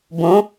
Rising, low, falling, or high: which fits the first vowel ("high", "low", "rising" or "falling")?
rising